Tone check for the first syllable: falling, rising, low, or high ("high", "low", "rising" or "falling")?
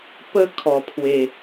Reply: high